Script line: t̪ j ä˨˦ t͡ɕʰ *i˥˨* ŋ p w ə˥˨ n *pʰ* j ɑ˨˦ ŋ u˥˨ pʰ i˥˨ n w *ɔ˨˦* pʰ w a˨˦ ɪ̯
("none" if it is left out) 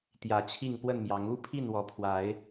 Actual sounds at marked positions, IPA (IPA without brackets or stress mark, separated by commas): i˥˨, m, ɔ˨˦